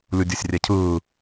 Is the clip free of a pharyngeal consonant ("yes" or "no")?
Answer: yes